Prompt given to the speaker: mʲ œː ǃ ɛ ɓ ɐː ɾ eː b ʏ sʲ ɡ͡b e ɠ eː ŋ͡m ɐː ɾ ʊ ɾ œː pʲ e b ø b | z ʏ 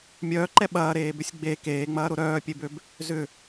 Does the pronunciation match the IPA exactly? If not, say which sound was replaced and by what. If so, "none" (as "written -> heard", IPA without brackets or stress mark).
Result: ɠ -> k